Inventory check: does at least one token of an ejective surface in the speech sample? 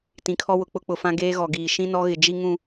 no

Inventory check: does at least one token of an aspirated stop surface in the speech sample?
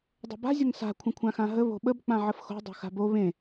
yes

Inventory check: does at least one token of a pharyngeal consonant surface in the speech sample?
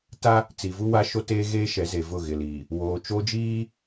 no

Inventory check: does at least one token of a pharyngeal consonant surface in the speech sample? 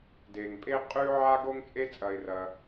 yes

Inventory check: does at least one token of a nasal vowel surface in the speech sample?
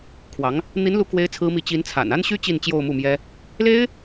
no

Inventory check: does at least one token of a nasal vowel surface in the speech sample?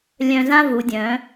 yes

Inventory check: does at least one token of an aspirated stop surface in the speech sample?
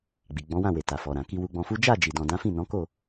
no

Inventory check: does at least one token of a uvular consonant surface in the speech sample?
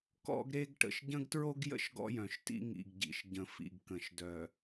no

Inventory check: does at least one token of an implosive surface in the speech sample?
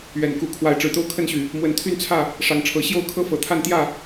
no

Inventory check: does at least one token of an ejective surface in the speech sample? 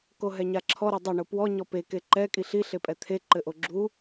yes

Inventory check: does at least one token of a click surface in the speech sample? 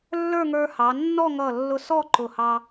yes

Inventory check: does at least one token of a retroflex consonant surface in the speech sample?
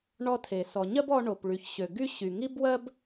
yes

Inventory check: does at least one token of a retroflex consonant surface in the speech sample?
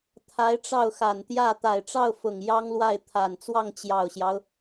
yes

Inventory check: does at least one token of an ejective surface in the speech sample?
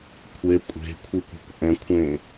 yes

